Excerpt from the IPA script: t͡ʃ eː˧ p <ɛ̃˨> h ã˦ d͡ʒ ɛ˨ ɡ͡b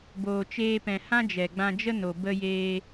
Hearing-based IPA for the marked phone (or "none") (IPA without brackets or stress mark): ɛ̃˨